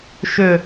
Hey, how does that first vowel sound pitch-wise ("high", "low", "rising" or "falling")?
falling